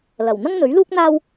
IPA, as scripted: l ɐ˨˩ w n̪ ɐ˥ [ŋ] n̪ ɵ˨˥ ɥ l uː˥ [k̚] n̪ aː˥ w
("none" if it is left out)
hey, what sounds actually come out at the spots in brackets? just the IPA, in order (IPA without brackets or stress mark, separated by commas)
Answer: ŋ, k̚